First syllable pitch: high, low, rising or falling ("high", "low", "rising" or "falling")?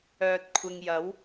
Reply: low